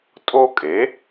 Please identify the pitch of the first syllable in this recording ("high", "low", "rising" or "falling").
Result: high